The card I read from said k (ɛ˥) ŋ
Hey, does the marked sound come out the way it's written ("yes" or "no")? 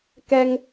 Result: yes